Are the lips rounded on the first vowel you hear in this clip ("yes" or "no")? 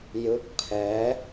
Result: no